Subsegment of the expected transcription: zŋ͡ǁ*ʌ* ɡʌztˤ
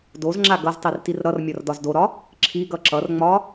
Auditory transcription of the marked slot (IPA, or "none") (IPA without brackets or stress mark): a